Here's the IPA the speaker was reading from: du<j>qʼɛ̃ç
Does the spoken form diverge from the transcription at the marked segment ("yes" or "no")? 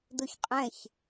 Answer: yes